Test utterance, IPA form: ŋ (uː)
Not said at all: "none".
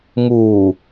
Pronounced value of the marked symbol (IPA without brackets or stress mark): uː